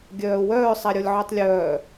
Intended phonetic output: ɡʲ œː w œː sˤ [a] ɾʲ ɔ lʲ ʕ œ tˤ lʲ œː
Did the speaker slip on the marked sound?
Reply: no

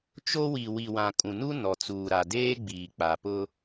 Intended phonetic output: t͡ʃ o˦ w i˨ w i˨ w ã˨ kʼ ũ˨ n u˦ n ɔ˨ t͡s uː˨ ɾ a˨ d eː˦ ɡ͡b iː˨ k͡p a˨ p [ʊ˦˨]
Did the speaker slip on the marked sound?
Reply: yes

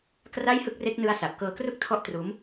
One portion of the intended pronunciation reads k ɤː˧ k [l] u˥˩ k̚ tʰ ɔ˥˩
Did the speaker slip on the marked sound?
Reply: yes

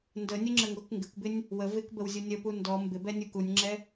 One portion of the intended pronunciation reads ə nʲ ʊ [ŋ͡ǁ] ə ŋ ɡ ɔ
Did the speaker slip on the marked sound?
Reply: no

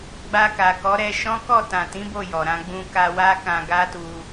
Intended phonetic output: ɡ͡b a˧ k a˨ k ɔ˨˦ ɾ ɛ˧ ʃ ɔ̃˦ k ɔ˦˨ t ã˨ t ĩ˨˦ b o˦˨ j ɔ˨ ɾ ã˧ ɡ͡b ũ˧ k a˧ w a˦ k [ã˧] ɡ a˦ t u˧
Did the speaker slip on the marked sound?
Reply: no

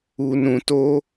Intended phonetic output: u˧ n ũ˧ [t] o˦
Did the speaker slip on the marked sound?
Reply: no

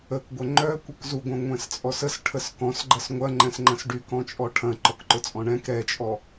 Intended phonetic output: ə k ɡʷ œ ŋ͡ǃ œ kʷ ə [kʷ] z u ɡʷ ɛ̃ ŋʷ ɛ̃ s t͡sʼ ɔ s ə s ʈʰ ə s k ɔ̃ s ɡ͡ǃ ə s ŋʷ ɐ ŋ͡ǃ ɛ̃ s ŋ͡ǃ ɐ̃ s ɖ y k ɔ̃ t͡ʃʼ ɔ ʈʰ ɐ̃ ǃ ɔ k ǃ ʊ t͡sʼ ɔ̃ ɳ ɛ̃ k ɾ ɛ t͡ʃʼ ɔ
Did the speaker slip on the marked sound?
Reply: yes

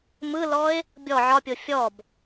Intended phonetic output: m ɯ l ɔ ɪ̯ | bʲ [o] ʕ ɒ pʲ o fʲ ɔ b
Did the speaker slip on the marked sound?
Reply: yes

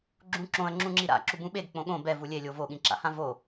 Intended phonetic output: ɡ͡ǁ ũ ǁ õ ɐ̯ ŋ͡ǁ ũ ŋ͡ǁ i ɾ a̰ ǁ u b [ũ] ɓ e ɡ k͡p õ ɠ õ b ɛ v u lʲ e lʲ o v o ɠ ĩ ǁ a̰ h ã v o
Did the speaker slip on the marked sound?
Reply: no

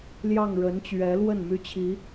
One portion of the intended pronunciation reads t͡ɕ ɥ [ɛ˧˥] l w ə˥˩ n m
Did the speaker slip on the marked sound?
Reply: no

